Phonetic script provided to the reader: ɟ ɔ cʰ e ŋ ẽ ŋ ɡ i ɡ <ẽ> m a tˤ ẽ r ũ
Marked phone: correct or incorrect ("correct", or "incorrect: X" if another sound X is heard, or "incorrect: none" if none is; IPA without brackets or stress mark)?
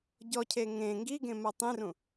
correct